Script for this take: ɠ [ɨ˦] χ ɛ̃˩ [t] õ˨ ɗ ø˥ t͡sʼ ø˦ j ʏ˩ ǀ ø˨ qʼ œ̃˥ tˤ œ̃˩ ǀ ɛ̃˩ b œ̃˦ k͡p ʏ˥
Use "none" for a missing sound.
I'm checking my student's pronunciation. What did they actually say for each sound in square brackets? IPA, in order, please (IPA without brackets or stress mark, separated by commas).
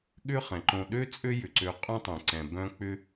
ʏ˦, ǃ